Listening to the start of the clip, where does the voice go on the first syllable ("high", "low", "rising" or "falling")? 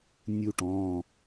falling